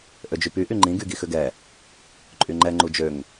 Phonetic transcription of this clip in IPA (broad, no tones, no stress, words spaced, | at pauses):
ʔød͡ʒypy ʔyŋ͡ǃĩ ɡyɡixʏɡɛ | ǃʼyŋ͡ǃɛ ŋ͡ǃud͡ʒøŋ